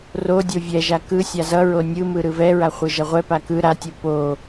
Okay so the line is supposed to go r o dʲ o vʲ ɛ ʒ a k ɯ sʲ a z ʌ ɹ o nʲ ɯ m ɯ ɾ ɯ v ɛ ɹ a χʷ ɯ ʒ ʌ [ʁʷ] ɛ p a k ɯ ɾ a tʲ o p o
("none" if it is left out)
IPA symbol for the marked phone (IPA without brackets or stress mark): ʁʷ